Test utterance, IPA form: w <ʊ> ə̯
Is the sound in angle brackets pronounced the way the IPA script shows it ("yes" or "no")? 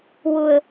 yes